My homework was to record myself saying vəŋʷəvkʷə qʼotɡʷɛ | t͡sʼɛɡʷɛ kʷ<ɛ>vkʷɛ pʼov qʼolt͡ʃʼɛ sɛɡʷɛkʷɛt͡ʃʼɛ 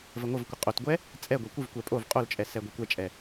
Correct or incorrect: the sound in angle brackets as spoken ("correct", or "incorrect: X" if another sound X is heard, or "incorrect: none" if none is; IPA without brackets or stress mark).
incorrect: ɨ